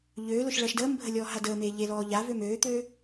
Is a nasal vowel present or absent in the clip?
absent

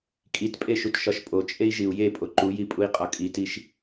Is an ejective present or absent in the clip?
present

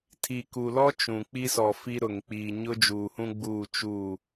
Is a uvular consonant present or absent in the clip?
absent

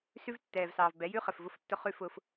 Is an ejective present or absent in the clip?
absent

